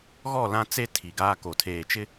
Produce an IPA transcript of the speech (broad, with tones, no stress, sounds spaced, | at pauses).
ɣ ɔ˦˨ l ã˦ t͡s e˦ tʰ i˨ ɡ aː˦ k o˨ tʰ eː˨ t͡ʃ ɪ˦